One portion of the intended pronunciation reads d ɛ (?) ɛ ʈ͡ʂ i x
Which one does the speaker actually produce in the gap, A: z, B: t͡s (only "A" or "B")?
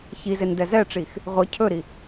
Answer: A